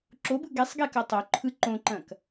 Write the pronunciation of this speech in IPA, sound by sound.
ǁ o b ɯ ɡ e sˤ ɡ e k ɐ tˤ o ǃʰ ɯ ǃ õ ǃ ɐ̃ k

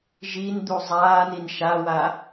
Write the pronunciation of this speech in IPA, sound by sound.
ʒ i n d̪ u zˤ aː n i n ʃ a w a

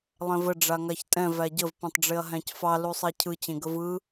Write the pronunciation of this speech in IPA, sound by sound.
lˠ ɛ̃ v ə ɖ͡ʐ a ŋ a ç tʼ ɛ̃ v æ ɟ ə v p ẽ tˤ ɖ͡ʐ e ɐ̯ ɦ æ̃ c f ɑ l u sˤ ɛ cʰ ɯ t͡ɕ ẽ ɡ ə v ɯ

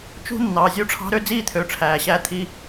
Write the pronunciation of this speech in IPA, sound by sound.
t͡ʃ ṳ˦ nː ɑ˨ zʲ u˧ ʈ͡ʂʰ ɑ̤˧ ɾ ø˧ d͡z iː˧ t̪ʰ ø˨ ʈ͡ʂʰ æː˨ ɕ æː˧ t̪ʰ i˧

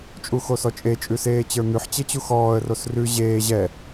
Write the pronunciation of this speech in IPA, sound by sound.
t͡ʃʼ u x o s ɔ t͡ʃʼ e t͡ʃʼ ʉ s eː t͡ɕ ə˞ n̪ ʉ ħ t͡ɕ e t͡ɕ u x ɔː ə̯ r o s r ʉ ʑ eː ʑ ɛ

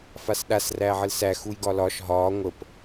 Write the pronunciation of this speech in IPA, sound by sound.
f a s ɗ a s r æː ʕ ə l s æ x u j ɡ ɒ l ɒ ʃ ɦ ɒː ŋʷ ə p

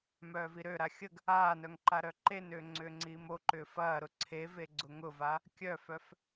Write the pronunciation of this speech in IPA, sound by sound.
m œː v i ɾ ø ɾ a xʲ ə ɡ | aː n œ ŋ ǃ a ɾ œ ǃ e n ʏː ŋ͡ǀ ʏː ŋ͡ǀ iː m o ǃ ʏː f ɐː ɾ ʊ ǀʰ e v e ɡ͡ǀ ʊ ŋ ʊ v a | kʲ œ f œ f

